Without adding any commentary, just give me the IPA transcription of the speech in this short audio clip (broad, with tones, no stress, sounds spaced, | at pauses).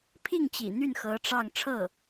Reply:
pʰ i˥˩ ŋ t͡ɕ ḭ˨˩ n̪ y˥˩ n x ɤ˧˥ ʈ͡ʂ ɑ˥˧ ŋ ʈ͡ʂʰ ɤ˥˩